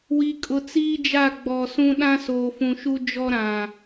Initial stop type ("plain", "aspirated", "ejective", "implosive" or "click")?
ejective